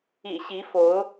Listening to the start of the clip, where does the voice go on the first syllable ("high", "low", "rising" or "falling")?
low